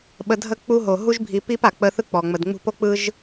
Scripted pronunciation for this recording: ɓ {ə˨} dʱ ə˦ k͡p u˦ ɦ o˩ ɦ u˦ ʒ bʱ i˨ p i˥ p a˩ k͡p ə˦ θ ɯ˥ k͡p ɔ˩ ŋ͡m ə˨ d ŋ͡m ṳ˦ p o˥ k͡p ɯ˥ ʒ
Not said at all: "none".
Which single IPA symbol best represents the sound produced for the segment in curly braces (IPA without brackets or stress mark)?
ə˨